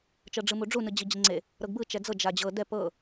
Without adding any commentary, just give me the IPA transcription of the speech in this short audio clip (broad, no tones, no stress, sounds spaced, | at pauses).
t͡ʃ ɤ ɖ͡ʐ ɯ m u ɖ͡ʐ u n ɯ d͡ʑ i d͡ʑ i ŋ͡ǀ e | ɾ ɤ ɡ b ɯ t͡ʃ ɛ d͡z ɤ d͡ʒ a d͡ʑ ɤ d ɛ p ɤ